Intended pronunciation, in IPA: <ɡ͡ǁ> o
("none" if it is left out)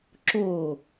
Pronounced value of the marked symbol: ǁ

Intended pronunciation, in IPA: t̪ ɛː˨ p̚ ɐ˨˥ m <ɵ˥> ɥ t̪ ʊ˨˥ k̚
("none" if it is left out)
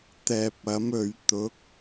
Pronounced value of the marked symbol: ɵ˨˧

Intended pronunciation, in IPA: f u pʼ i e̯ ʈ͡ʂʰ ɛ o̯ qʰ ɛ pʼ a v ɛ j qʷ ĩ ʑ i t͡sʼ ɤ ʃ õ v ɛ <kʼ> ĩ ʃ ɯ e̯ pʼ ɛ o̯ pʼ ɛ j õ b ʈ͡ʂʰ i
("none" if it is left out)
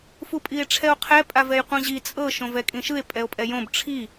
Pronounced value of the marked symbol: kʼ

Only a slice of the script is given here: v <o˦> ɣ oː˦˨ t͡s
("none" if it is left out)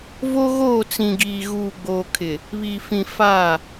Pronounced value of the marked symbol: o˦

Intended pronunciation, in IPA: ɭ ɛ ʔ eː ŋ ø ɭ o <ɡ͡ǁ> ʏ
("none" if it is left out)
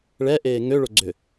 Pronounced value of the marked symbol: ɡ͡ǀ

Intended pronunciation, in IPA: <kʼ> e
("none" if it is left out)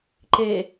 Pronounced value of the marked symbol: ǃ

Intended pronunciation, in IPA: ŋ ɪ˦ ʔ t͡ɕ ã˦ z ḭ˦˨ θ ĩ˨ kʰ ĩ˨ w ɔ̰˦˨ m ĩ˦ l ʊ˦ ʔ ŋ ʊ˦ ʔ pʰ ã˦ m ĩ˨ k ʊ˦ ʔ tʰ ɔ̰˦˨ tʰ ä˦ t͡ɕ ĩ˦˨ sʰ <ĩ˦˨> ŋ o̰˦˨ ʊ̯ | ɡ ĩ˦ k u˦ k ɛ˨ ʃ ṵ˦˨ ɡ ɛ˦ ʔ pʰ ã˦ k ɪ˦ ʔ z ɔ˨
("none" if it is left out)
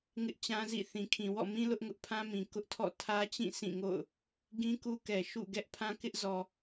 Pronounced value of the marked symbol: ĩ˦˨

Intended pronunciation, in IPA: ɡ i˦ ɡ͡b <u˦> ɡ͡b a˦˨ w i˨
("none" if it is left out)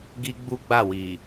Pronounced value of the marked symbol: u˦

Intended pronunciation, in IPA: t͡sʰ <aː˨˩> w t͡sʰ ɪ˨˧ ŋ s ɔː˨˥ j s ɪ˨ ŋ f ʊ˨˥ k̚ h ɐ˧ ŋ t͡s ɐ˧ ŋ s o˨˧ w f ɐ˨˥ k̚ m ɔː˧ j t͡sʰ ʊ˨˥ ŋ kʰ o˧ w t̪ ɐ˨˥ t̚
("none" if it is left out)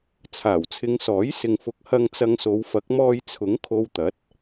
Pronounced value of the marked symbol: aː˨˩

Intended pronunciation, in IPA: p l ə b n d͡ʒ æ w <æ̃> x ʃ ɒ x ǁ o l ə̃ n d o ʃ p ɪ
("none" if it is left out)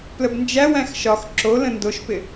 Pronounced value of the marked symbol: æ̃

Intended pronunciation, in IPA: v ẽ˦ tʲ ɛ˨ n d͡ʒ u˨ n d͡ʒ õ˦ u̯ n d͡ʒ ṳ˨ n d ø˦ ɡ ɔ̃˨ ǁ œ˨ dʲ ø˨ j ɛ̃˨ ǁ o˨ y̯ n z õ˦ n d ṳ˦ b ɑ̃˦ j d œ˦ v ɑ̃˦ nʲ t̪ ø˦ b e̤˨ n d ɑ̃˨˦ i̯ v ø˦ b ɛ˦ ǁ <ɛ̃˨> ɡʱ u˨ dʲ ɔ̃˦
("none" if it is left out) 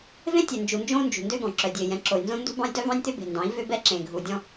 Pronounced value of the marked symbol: ẽ˨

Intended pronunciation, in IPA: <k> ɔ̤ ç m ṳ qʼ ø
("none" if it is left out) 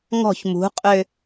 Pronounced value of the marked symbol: ŋ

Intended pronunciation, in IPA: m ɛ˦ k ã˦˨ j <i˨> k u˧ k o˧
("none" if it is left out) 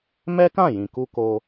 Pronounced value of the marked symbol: ĩ˨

